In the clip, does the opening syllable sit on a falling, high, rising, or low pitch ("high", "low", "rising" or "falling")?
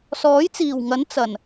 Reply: rising